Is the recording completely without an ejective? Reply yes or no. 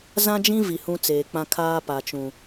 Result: yes